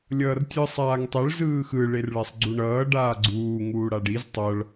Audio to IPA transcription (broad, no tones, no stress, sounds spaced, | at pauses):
lʲ ʌː r tʲ ɯ sˤ aː ŋ tˤ ɛ ɭ z ɯː x ɯ ɭ e r ɭ ɛ sˤ ɡ͡ǀ u ɳ ʌː ɖ aː ɡ͡ǀ uː ŋ uː ɽ a ɖ i z tˤ ʌ ɭ